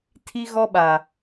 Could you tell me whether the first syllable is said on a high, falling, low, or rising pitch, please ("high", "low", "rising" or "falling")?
high